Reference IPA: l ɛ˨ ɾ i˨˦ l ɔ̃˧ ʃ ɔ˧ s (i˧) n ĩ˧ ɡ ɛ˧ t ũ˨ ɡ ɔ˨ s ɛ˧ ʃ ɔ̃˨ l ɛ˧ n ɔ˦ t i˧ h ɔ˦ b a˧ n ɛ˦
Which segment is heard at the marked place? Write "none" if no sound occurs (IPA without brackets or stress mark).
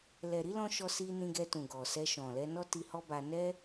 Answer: i˧